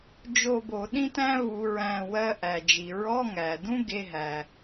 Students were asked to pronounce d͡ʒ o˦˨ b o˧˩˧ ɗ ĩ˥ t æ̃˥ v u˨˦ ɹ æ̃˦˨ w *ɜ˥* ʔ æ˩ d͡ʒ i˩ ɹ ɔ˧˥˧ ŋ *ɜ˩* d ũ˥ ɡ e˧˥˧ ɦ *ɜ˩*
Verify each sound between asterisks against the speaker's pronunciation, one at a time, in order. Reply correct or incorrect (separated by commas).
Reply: correct, incorrect, incorrect